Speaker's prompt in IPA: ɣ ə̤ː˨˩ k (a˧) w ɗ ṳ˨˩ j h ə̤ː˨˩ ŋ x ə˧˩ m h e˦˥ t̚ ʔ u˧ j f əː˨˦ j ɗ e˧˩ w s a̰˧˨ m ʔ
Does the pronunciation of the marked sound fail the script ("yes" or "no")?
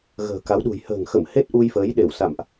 yes